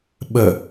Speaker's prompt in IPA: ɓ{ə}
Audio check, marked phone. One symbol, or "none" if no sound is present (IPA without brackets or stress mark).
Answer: ə